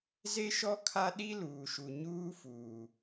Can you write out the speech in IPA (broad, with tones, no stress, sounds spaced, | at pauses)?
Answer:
z e˦ ʃ ɔ˦ kʰ a˦ ɗ i˦ l uː˨ ʃ u˨ ɲ uː˦ f uː˨